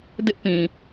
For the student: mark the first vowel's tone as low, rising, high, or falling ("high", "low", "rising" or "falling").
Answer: high